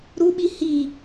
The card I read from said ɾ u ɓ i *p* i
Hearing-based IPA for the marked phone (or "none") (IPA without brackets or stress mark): h